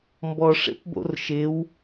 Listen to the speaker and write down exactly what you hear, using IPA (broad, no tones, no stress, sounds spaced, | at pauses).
m b ɔ ʂ ḛ p b o̰ r ʃ ɪ w